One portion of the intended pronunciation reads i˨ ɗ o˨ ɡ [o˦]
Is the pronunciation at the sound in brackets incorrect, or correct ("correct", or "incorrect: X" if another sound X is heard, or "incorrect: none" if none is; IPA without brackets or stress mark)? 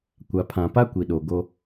correct